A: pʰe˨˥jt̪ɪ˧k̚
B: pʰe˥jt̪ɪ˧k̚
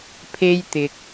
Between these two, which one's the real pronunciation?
B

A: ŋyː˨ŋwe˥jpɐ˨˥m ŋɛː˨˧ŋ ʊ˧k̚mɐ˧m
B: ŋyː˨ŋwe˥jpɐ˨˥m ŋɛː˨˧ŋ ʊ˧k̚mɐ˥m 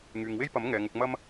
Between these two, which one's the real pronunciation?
B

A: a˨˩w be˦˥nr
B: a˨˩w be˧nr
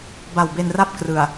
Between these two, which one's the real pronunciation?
B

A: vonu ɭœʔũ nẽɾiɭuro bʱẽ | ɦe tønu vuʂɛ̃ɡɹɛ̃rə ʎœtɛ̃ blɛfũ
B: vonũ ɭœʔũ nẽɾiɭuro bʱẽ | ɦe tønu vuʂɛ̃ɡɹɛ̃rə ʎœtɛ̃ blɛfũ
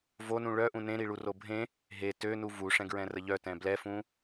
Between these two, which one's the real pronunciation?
B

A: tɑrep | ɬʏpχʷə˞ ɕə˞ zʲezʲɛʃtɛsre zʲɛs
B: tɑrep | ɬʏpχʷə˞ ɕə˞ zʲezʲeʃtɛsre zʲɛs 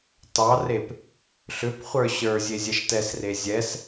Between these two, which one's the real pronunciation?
A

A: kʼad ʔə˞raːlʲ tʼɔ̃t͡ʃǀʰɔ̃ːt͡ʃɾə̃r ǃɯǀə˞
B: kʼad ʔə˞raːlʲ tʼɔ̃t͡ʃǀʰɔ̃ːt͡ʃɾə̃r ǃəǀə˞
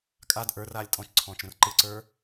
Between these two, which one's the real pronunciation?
A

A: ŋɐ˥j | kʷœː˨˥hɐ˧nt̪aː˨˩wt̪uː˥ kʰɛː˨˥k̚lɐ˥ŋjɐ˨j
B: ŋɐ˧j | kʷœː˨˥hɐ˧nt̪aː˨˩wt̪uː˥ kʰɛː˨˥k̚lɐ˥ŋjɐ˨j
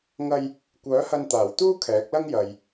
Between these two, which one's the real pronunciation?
B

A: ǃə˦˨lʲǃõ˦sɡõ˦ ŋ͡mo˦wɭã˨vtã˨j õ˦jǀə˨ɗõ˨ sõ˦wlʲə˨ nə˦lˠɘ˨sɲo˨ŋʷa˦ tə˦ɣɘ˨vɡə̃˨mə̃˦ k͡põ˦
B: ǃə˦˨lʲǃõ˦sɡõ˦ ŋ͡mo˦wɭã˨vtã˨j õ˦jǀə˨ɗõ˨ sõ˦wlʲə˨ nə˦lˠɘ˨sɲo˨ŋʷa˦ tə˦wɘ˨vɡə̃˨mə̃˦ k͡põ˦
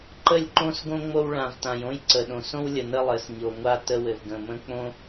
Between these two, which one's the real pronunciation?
B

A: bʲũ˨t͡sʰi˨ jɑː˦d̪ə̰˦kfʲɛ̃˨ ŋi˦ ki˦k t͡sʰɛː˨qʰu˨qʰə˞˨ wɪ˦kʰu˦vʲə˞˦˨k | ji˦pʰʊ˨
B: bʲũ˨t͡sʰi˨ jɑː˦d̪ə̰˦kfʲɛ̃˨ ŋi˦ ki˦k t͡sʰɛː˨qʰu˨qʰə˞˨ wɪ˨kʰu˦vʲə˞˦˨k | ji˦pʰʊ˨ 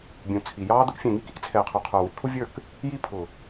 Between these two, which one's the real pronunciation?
B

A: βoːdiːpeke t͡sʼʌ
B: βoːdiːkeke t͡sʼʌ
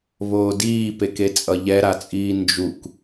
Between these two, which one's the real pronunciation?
A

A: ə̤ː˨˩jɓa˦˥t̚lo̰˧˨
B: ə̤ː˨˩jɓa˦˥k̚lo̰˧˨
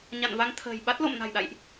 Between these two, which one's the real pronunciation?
A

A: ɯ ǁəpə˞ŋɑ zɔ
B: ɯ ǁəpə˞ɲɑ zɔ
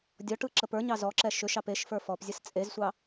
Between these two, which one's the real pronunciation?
B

